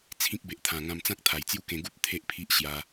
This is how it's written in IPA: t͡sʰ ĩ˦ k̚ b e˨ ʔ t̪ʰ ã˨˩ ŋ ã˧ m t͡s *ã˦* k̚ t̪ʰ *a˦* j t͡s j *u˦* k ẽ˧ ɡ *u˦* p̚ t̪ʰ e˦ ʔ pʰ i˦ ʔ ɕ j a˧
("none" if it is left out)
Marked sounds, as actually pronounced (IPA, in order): ã˦, a˨˩, u˦, u˦

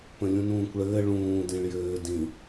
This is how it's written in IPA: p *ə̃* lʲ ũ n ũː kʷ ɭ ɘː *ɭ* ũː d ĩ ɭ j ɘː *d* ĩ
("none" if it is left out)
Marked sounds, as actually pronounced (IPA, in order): ə̃, ɭ, d

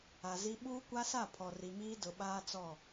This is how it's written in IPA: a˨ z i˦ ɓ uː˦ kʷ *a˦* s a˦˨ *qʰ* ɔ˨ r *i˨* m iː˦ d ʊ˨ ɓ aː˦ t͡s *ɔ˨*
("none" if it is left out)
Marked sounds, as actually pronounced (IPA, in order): a˦, pʰ, i˨, ɔ˦˨

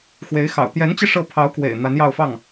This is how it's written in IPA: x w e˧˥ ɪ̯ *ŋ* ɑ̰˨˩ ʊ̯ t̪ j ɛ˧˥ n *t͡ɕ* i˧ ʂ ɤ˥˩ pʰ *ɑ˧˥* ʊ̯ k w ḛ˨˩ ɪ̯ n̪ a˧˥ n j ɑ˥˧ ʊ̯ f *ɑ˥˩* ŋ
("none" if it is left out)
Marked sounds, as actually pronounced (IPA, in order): x, t͡ɕ, ɑ˧˥, ɑ˥˩

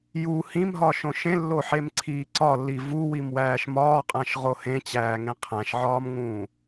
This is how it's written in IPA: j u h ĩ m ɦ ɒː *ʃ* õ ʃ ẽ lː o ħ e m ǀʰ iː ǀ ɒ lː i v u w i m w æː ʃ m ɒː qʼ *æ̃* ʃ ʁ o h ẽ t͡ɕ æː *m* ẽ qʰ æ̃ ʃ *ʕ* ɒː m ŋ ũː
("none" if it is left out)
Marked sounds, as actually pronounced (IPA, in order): ʃ, æ̃, ŋ, ʕ

